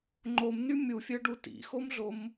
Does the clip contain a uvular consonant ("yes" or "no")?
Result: no